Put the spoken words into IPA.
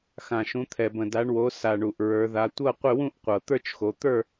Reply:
x ã˨˩ ʃ ũ˨˦ t̪ʰ ɛ˨˩ b ə̃˨˩ d a˨˦ ɳ w o˨˦ s a˨˩ ɳ u˨˩ ʔ ɹ ə˞˨˦ ð a˨˦ tʷ ɤ˥˧ qʷ ɪ˥˧ w ũ˥˧ ʔ qʷ ɤ˨˩ t̪ ə˞˥˧ t͡ʃ x o˨˦ t̪ ə˞˥˧

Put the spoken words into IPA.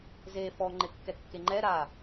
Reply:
z e f ɔ ŋ͡ǃ ɪ kː ɛ kː e ŋ͡ǃ ɛ ɾ a

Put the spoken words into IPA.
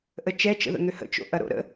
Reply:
ʔ ə t͡ʃ ɛ t͡ʃ ə̰ ð ə̰ ŋ ø h ə̰ t͡ʃ o̰ ʔ ɐ ɾ o̰ ɾ ə̰

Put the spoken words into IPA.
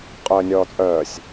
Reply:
qʼ œː nʲ ɔː t͡sʼ œː sʲ

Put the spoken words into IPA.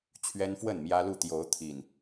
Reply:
t͡ɕʰ ɥ ɛ˦ n f w ə˥˨ n m j ä˦ l u˥˨ t̪ j o˨˦ ʊ̯ t̪ʰ i˨˩ n

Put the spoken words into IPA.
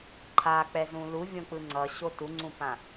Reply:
ǃʰ a k͡p ɛ z ũ l u vʲ õ k͡p ɯ ŋ͡ǀ ʌ ɕ o t u ŋ͡ǀ ũ p ã

